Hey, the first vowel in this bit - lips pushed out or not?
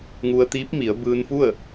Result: yes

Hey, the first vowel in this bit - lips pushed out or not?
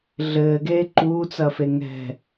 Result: no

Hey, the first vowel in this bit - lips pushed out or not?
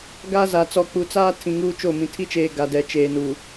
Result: no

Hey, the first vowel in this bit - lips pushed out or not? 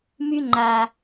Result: yes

